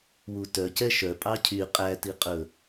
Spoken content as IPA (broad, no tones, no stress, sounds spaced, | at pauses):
w u t œ c ɛ ʃ œ pʼ ɑ cʰ y qʼ æ t i qʼ ɵ